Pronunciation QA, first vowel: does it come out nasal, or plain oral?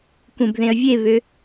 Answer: nasal